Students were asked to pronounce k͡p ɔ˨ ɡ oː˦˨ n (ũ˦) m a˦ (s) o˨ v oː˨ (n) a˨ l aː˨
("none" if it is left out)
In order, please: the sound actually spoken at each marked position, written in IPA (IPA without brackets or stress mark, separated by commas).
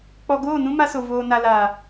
ũ˦, s, n